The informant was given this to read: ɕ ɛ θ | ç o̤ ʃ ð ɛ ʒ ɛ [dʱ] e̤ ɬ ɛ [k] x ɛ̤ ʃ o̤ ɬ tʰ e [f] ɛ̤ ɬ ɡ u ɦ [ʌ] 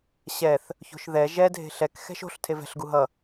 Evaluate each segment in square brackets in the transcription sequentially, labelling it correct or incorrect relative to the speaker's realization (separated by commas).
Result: correct, correct, incorrect, correct